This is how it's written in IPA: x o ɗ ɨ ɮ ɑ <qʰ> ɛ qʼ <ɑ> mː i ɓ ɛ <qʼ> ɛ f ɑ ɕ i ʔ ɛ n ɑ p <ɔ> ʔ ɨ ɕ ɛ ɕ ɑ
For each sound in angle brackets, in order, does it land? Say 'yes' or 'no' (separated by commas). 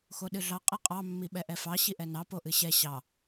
no, yes, no, no